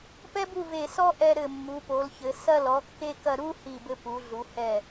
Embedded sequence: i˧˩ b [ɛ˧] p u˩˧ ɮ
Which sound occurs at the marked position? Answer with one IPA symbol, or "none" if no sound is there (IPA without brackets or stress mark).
ɘ˧